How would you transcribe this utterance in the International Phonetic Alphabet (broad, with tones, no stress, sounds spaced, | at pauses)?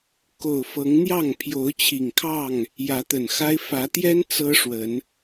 k o˨˩ ʊ̯ f ɤ˨˦ ŋ n̪ j ɑ˥˨ ŋ pʰ j o˨˦ ʊ̯ t͡ɕʰ i˨˩ ŋ kʰ ɑ˥˨ ŋ | j ä˨˦ t̪ ə˨˩ n x a˦ ɪ̯ f ä˨˦ t̪ j ɛ˦ n t͡s ɤ˦ ʂ w ə˨˦ n